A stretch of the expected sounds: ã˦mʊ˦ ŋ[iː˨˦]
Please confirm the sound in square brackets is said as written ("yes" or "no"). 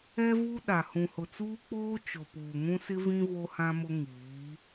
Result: yes